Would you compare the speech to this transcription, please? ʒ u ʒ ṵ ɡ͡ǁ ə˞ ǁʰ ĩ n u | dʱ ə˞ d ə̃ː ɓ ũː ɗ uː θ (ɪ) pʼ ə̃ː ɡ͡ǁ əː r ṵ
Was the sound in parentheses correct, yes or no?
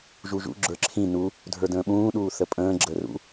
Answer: no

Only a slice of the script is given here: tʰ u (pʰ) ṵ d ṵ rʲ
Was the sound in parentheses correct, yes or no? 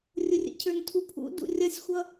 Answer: yes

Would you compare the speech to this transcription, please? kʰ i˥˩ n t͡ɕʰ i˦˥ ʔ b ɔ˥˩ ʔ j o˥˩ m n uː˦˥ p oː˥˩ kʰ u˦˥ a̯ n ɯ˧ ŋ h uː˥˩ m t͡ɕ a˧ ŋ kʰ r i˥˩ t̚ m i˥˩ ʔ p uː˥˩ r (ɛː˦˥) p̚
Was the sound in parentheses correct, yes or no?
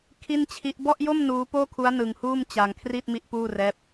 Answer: yes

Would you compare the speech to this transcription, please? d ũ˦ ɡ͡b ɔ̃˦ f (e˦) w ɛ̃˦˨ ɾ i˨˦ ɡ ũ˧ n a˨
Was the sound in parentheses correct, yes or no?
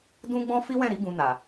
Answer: no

